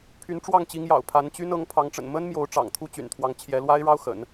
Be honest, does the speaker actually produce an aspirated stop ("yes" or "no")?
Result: yes